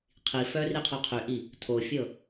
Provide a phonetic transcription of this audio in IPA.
qʰ i f œ r i qʰ œ qʰ y ʔ i | tʰ o fʲ ɤ

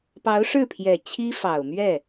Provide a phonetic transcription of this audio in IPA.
p ɑ˧˥ ʊ̯ ʂ ɻ̩˥˩ pʰ j ɛ˨˩ t͡ɕʰ i˥ f ɑ˨˩ ʊ̯ m ɥ ɛ˥˩

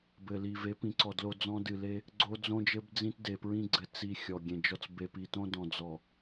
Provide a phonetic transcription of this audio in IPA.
b ɘ˨ l i˨ v e˨˦ p ĩ˨˦ ǀ ɔ˨ d l o˦ d͡z ɔ̃˦ d ɨ˨ l e˦ | ɡ͡ǀ o˦ d͡z õ˦ d͡ʒ ɘ˦ b d͡z ĩ˦ t d e˨ p ɹ ĩ˦ ɡ͡ǀ ɘ˨ t͡s i˨ xʲ ɔ˨ ɡʲ ẽ˨ d͡ʒ ɔ˦ t͡s b e˨ p i˨ t õ˦ d ɔ̃˨ d͡z ɔ˨

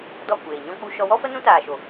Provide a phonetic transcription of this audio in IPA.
d ɔ˦˨ kʷ eː˨ ɲ ɔ̃˦ k͡p u˦ ʃ ɔ˧ w ɔ˦ f ə˦ n ũ˦ t aː˨ ʃ o˨

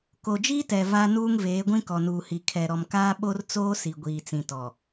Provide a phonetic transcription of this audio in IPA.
k o˨ d͡ʒ iː˦ t ɛ˨ v a˦ n uː˦ ŋ v eː˨˦ ɡʷ ĩ˦ k ɔ˨ n uː˨ h i˨ kʰ ɛ˨ ɾ ɔ˨ m k aː˦ ɓ o˦ r t͡s oː˦ s i˨ ɡʷ iː˨ t͡s ĩ˨ t ɔ˨

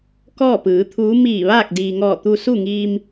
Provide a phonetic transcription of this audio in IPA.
k ɔː˥˨ p ɯː˩˧ t̪ʰ uː˧˥ m iː˧˩ ʋ aː˥˨ k̚ d iː˩ ŋ ɔː˧˩ t̪ u˧ s u˥˨ ŋ iː˧ m

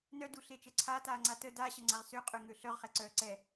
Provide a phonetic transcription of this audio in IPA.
n œ d u ɬ e t͡ʃ ɛ ǀʰ aː t aː ŋ͡ǀ a t ə d a ɕ ə ŋ͡ǀ a ʁ s ø qʼ ø ŋ ø ɬ œ ʁ χ ɛ ǀ œː ǀ ɛ

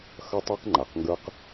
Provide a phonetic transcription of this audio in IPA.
x ʌ˦ tˤ e˦ q ŋ͡ǃ a˨ q ŋ ɡ ə˞˦ q

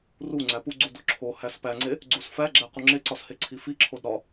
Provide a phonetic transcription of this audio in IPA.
r u ŋ͡ǀ æ p u ɡ͡ǀ u d o ǁʰ o h æ s p æ ŋ͡ǀ e | ɡ͡ǀ u s f æ ɡ͡ǁ æ q u ŋ͡ǁ e ǀ ɒ s h e ǀʰ i f i ǁʰ o d ɾ ɒ

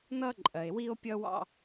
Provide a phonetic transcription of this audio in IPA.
n ʌ˦ ǃʼ ɜ˨ e̯ w i˦ o̯ pʲ ʌ˦ w ɑ̰˦

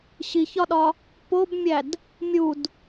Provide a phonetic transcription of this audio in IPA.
ɕ i ç ɒ ɗ ɒ | p o b mʲ æ d | mʲ u d

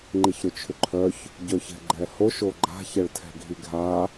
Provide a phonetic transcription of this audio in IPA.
ŋ͡ǃ i ç ɾ ʏ t͡ʃʰ ʏ ǃʰ œ ç | ɟ œ ç ɛ̤ ɡ͡ǃ ɛ h o ʃ o ɡ͡ǃ a̤ ç ɛ ɭ tʰ ɛ̤ ɡʱ i ɡʱ a

